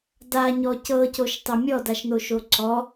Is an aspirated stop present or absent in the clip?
absent